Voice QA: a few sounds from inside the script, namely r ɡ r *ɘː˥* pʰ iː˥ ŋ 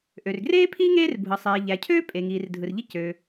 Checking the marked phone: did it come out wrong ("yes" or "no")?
yes